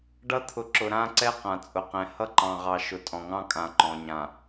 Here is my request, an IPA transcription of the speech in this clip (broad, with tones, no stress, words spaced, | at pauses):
ɖʌ˦t̪ʰʊ˨ǁʊ˨ ɾã˦ǀɛ˦ qã˨ t͡sʼʊ˨qɛ̃˨ hʌ˦ǃɑ̃˨ʁɑ˨ ʃʊ˨tʼɔ̃˨ŋɑ̃˦kʼã˨ ǃɔ̃˨ɲã˨